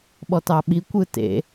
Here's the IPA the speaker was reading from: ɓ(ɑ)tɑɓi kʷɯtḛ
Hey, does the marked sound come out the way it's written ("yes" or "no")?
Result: no